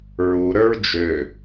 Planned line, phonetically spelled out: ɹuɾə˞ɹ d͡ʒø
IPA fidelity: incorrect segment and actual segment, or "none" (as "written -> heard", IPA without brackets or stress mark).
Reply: none